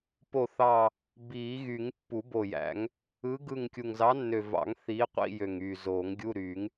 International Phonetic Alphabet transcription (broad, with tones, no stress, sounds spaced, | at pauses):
p o˦˨ θ ɑ˦˨ | b iː˨˩˦ ɣ y˨˩˦ ŋ pː u˨˩˦ b o˨˩ j æ̰˨˩˦ ŋ | ɯ˨˥ ɡ ɯ˦˨ ŋ kʲ u˨˩ ŋ z ɑ˨˥ nː ø˨˩ v ɑ̰˨˩˦ ŋ θ iː˨˥ qʷ ḭ˧˥˧ j ø˨˩ ŋ yː˨˩ z oː˨˩˦ ŋ ɡʲ u˧˥˧ ɾ yː˨˩˦ ŋ